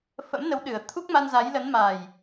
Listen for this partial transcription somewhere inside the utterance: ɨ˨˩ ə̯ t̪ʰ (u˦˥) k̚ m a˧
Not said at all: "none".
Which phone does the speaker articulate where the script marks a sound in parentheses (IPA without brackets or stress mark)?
u˦˥